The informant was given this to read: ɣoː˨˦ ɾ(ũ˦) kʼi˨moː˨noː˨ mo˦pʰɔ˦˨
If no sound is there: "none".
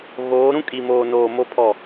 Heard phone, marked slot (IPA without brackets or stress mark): ũ˦